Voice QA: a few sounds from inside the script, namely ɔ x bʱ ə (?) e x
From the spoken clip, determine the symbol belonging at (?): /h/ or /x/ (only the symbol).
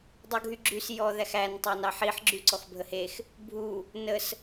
h